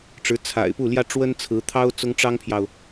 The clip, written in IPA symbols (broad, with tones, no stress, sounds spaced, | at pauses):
ʈ͡ʂ ɻ̩˧˥ t͡sʰ a̰˨˩ ɪ̯ p u˥˩ l j ä˥ ʈ͡ʂ w ə˥ n t͡sʰ ɹ̩˧˥ t̪ʰ ɑ˥ ʊ̯ t͡s ʊ˥ ŋ ʈ͡ʂ ɑ˥ ŋ pʰ j ɑ˨ ʊ̯